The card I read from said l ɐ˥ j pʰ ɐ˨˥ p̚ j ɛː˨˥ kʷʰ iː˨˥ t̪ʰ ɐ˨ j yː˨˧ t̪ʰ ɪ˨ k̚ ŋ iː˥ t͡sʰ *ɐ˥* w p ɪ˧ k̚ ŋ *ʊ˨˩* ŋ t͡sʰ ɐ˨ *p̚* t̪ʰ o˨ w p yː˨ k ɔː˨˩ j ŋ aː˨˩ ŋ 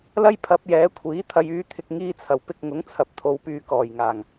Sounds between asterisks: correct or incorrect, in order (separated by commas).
incorrect, incorrect, correct